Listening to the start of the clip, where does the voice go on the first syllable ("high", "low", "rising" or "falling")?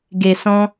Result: low